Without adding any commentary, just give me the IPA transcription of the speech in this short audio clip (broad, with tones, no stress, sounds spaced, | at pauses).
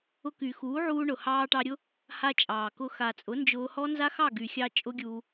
ʊ˧ k y˨ x uː˨˦ ʕ uː˧ ɳ ʊ˨ h ɑː˧ ʈ ɑ˧ ɾʲ ʊ˦ | h a˦ t͡ʃʼ ɑː˨ k ʊ˦ x a˨ t͡sʼ ʊ˨˦ n d͡ʒ ʊː˧ h ɔ˦ n z a˦ x ɑ˦˨ ɡ y˨ xʲ ɑ˧ t͡ʃʼ ʊ˦ ɡʲ uː˧